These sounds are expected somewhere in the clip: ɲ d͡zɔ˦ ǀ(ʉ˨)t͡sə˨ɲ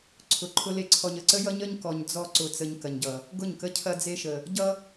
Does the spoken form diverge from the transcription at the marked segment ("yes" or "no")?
yes